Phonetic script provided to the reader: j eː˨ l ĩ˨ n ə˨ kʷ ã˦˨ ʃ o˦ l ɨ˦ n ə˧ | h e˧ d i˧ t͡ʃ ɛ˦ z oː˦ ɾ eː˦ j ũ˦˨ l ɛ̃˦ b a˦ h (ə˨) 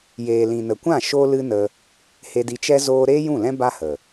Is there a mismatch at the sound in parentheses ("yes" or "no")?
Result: no